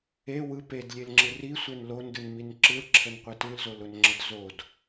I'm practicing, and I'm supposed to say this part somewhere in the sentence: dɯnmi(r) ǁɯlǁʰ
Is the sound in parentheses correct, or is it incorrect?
incorrect